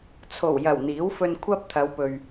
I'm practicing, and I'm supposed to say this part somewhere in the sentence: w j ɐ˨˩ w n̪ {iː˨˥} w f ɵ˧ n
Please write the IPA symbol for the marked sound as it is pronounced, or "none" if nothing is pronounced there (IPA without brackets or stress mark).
iː˨˥